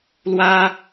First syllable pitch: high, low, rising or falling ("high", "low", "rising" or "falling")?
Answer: high